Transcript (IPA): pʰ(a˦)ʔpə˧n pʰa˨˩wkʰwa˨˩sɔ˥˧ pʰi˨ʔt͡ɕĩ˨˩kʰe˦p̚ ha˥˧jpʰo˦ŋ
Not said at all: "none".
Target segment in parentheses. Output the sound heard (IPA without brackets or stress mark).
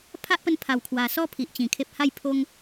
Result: a˦